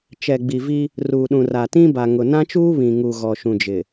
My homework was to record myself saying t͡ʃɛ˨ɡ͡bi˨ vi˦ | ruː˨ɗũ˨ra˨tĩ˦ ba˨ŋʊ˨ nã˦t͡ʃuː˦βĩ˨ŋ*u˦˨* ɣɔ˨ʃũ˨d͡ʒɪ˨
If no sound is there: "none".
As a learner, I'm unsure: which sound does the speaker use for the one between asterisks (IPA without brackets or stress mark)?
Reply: u˨